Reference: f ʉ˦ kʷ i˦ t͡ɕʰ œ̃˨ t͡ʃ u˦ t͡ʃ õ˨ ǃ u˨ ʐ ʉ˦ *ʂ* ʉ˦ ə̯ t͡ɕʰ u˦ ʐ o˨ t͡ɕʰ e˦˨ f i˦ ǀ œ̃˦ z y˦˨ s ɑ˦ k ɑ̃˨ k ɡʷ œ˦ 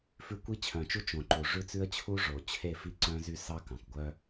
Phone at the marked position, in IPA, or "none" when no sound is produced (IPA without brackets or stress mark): t͡s